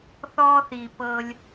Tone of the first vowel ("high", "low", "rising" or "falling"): high